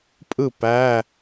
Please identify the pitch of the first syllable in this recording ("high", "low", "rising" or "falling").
falling